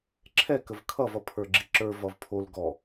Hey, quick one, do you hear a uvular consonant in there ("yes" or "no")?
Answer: no